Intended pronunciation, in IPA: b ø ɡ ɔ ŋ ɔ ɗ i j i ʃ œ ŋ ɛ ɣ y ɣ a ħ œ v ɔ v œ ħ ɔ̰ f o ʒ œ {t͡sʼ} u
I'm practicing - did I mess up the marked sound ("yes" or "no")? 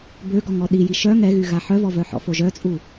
no